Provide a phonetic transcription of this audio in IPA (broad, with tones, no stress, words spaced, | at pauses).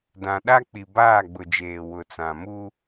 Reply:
dã˨ɗa˦ k͡pi˨baː˦˨ɡ͡bʊ˨d͡ʒeː˨ wʊ˨t͡sã˨ mu˦